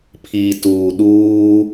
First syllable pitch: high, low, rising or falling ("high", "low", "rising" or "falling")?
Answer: low